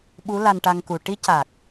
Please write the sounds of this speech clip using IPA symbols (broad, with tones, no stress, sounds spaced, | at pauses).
ɓ u˧˥ l a˧ n ʈ a˧ ŋ k u˨˩ ʈ i˧˥ c a˨˩ k̚